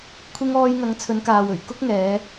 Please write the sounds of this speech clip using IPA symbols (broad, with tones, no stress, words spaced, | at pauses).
kʷʰɪ˧ŋ ɔː˧jŋɐ˨˧ŋ t͡sʰɵ˨˧nkaː˨wɵ˨˩ɥ kʊ˥k̚ŋɛː˨˧